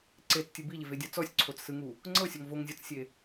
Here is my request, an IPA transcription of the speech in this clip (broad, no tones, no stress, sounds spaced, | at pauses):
ǀ e t͡s tʲ ɯ b i ʎ e v e dʲ a t͡s ɔ sʲ ǀʰ o t͡s s ɯ ŋ u | ŋ͡ǀ ɤ sʲ ɔ ŋ v o ŋ zʲ ɔ t͡s sʲ e